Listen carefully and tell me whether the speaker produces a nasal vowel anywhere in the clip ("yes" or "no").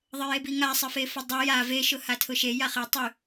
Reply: no